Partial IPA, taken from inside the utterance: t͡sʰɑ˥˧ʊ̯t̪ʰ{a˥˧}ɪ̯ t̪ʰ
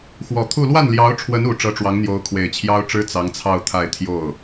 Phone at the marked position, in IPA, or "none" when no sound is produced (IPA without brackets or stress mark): a˥˧